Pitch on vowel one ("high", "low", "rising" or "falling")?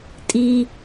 high